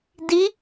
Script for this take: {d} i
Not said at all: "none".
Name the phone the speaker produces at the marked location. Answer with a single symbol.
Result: d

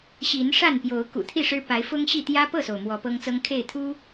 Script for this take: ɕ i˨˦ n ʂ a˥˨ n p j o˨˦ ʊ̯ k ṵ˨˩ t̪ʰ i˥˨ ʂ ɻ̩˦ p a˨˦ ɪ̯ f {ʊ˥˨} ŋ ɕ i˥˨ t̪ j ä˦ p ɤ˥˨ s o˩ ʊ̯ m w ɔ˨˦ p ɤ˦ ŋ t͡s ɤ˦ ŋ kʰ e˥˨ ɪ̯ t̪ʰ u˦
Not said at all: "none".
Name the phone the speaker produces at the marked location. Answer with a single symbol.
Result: ʊ˦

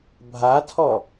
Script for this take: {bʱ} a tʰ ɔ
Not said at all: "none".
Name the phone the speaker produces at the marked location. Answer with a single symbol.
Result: bʱ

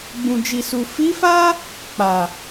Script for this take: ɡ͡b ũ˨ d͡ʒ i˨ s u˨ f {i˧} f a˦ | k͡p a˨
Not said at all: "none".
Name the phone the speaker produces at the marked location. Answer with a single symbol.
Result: i˨˦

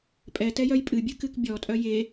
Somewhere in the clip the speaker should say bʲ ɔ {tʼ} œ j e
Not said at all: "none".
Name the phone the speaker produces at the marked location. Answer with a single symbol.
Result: tʼ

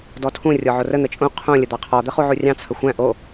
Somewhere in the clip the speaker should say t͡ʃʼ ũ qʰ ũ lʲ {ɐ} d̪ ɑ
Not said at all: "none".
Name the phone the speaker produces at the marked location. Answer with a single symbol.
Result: ə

